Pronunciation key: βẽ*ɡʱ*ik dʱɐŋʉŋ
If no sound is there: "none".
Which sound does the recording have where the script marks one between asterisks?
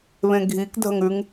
ɡʱ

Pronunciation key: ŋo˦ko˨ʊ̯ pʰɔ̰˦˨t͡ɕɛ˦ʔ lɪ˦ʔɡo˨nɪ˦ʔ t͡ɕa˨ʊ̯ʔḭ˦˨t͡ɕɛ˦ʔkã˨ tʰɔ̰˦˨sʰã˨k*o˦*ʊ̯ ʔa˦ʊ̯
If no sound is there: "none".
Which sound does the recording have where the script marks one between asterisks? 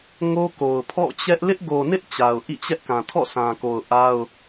o˨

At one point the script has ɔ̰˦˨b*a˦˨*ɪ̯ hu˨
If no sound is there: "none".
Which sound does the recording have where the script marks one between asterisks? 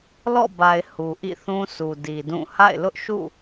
a˨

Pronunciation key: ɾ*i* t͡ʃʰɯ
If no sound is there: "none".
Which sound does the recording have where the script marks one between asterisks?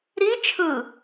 i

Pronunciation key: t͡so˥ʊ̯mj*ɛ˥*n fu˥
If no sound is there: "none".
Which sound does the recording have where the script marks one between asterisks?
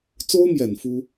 ɛ˨˩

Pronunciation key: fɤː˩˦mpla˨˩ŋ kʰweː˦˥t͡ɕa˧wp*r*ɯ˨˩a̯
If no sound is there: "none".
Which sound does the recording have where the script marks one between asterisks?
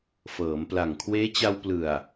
l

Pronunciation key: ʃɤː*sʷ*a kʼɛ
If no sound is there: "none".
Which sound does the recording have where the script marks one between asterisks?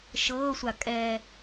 sʷ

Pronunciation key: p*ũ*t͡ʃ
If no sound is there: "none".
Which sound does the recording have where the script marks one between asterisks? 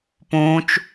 ũ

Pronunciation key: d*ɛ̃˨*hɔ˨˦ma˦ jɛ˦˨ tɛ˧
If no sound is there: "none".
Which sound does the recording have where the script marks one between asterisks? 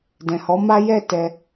ɛ̃˨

